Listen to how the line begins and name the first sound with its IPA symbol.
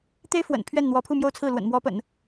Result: t̪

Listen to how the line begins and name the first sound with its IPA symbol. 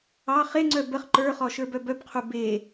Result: ɑ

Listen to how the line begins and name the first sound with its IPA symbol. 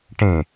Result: ʈ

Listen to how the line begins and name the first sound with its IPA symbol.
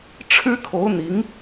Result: ʈ͡ʂʰ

